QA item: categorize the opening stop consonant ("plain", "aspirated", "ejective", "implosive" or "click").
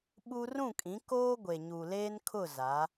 implosive